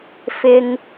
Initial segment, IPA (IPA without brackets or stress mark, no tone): f